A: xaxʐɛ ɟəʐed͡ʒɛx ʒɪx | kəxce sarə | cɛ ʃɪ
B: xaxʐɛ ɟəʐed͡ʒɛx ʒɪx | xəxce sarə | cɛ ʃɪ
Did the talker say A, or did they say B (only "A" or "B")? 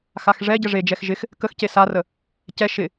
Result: A